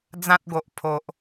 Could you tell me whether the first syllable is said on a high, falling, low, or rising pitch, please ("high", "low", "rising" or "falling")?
high